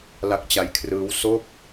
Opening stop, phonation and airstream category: plain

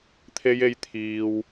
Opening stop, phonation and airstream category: aspirated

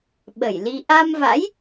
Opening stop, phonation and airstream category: implosive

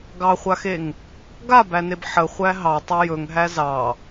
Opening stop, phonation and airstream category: plain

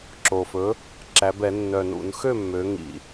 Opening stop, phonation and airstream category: click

